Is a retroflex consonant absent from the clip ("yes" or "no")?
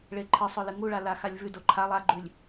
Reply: no